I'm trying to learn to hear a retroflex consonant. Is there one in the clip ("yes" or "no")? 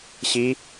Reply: no